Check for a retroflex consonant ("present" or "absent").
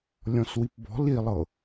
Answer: absent